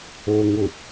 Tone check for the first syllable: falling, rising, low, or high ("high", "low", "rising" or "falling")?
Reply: low